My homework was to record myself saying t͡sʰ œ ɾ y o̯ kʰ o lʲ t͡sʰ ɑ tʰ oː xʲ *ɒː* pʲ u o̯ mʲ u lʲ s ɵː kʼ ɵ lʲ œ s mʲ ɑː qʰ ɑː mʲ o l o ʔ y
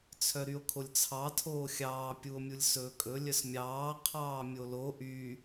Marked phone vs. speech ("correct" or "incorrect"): incorrect